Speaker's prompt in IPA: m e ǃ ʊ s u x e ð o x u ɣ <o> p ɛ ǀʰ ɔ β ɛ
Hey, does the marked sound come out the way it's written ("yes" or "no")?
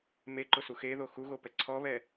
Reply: yes